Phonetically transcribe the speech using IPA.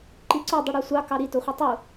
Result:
ǃ i ǀ o dˤ ɯ ɽ ɑ sʷ ɑ k ɑ ɾ i t o χʷ e tˤ u

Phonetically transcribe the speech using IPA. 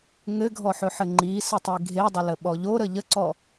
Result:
ŋ ɘ ɡʱ ɔ ħ ɵ ħ ɘ ŋ͡ǃ i s ə tˤ i ɡʱ e dˤ ə l ə ɓ ɔ ʎ o ɾ ə ʎ ə ǀ ɔ

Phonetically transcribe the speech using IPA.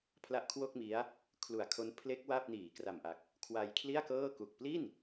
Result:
pʰ l a˦˥ ʔ kʰ w o˥˩ k̚ m i˦˥ a̯ | kʰ l u˨˩ a̯ kʰ o˦˥ n pʰ l e˦˥ k̚ w a˥˩ p̚ n iː˩˦ k r a˨˩ m ʔ a˨˩ k̚ | kʰ w a˧ j kʰ l i˥˩ a̯ k ɤː˥˩ k u˨˩ k̚ p l i˥˩ n

